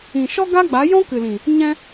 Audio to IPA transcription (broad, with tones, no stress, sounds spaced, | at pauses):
ĩ˨ ʃ ɔ˦ ɡ a˦ ɡ͡b a˨˦ j ɔ̃˦ k ɨ˨ l ĩ˨ | ɲ ɛ̃˧